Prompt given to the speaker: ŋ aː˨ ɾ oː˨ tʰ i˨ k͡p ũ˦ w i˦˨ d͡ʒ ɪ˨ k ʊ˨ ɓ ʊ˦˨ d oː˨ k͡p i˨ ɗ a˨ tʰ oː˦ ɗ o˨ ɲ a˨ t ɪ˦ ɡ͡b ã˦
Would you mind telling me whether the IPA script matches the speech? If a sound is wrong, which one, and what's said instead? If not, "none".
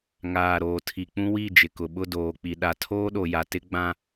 ɲ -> j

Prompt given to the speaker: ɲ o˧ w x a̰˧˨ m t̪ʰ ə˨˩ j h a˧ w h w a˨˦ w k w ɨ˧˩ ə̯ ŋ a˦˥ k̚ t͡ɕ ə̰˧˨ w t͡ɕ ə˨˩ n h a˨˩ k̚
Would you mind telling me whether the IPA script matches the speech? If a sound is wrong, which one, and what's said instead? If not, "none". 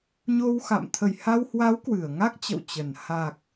none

